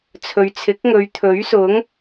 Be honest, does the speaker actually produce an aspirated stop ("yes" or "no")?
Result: yes